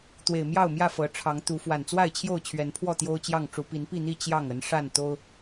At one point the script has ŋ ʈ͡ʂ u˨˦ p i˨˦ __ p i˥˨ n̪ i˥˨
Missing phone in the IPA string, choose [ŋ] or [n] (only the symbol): n